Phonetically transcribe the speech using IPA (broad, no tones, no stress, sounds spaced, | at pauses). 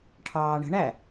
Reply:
ʈʰ ɑː ɳ ə̤ ɳ æ